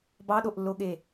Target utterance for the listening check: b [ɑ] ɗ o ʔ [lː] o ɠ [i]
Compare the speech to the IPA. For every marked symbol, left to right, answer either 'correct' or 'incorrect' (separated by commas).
correct, correct, incorrect